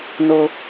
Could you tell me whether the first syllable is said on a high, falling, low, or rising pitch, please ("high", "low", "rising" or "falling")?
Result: low